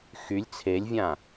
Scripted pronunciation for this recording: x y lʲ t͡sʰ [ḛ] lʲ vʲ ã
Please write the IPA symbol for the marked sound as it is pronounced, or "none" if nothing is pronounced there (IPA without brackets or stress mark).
e